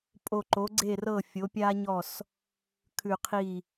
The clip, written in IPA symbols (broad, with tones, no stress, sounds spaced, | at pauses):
pʼ o˧˩ ǃ o˩˥ ɡ͡ǀ e˥˩ r ɤ˥˩ fʲ o˩˥ pʲ a˥ ɲ ɔ˥˩ s | kʰ ʉ˧˩ qʰ i˥˩